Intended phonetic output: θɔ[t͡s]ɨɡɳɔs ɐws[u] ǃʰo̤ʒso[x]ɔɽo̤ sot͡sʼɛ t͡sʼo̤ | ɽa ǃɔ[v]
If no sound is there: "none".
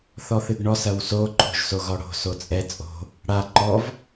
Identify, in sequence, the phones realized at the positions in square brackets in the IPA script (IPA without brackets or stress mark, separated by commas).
θ, o, ɣ, v